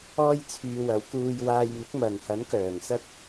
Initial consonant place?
palatal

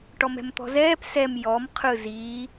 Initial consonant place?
retroflex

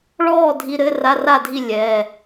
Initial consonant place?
retroflex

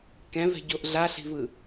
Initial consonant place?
velar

